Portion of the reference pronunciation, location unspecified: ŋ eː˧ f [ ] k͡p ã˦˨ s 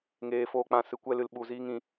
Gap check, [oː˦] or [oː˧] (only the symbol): oː˦